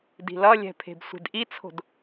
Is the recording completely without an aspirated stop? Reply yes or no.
no